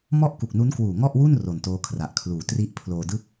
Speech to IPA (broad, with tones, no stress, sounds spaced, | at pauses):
m ɔ˥˩ ʔ k u˨˩ k̚ n u˦˥ n k w uː˨˩ ŋ ɔ˥˩ ʔ w u˥˩ n r o˨˩ n t oː˦˥ kʰ r a˨˩ ʔ kʰ l uː˨˩ t r i˥˩ ʔ pʰ l oː˧ d ɯ˥˩ k̚